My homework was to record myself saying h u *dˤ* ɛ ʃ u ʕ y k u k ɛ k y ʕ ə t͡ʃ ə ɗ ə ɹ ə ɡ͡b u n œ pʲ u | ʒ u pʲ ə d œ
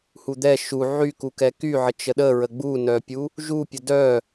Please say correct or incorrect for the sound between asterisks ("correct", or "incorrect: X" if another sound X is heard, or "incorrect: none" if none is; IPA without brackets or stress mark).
incorrect: d̪